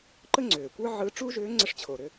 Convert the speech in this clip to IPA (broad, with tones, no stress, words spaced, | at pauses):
ǃə˥ŋ͡ǀʏː˩kʷə˞˥ ʕɯ˧˥ ʈ͡ʂuː˥ʒʏː˧˥ ŋ͡ǀə˧ʂt͡ɕʰo˩ɾʏ˧